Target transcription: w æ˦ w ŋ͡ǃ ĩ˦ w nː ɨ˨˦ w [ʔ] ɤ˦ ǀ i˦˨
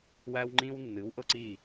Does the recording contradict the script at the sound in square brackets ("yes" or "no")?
no